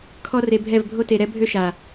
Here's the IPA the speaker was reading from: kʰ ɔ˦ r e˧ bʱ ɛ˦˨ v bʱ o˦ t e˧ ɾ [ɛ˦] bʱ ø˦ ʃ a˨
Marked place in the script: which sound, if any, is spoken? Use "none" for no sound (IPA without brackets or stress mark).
ɛ˦